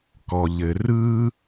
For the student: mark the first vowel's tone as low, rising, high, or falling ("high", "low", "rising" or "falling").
low